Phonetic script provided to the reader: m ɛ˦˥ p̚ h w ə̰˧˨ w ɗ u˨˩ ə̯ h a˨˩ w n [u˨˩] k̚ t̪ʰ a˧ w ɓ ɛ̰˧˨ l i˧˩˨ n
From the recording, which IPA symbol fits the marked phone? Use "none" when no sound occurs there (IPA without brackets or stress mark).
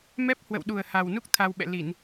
u˦˥